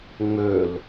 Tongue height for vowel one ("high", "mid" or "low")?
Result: mid